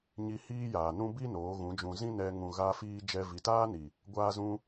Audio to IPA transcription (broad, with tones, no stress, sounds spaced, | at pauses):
ɲ i˧ h iː˦ j aː˨ n ũ˦ b i˦ n oː˨˦ ɣ ũ˨˦ d͡ʒ ũ˧ z ĩ˦ n ɛ˧ ŋ ũ˨ ɣ a˧ f iː˧ d͡ʒ ɛ˧ v i˨ t aː˦ n i˨ | ɡʷ aː˧ z ũ˧